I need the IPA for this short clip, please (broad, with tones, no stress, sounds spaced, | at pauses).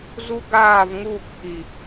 z u˦ ɡ aː˦˨ v ŋ uː˦˨ k ʔ i˨